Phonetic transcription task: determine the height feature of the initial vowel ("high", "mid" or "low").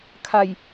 low